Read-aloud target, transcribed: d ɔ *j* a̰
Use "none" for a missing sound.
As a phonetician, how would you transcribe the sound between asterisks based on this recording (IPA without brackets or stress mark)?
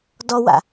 w